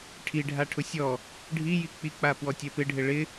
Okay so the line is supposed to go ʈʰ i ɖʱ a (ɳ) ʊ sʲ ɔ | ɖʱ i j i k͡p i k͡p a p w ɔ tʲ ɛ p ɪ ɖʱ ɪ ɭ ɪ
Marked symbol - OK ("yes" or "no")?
no